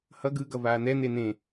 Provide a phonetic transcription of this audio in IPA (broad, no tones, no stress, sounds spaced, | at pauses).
h ʌ ɡ ɯ ɡ ʌ v aː n̪ ɛ n̪ e n̪ ẽ